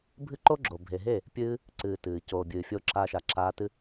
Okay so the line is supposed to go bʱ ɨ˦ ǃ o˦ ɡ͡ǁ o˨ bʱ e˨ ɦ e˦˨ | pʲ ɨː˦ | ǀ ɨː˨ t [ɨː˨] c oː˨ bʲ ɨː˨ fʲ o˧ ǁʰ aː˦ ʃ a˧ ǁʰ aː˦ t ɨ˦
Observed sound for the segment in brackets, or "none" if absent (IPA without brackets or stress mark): ɨː˨